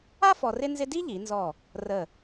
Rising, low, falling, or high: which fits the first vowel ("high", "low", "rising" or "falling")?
high